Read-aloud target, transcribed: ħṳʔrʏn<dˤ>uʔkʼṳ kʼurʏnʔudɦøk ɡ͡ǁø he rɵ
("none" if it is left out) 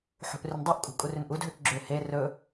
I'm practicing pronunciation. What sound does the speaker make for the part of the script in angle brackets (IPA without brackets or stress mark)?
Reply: dˤ